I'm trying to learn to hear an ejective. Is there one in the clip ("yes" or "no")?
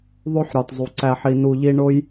no